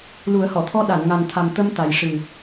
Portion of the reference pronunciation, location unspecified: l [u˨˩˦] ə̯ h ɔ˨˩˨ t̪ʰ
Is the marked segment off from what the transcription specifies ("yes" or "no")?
no